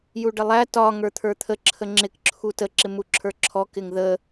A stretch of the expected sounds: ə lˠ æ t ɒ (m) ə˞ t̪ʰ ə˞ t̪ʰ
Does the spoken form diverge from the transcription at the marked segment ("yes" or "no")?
yes